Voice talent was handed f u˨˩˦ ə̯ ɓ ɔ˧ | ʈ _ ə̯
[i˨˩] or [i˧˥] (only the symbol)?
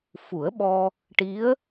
i˧˥